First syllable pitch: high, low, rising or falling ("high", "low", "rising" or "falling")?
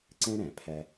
high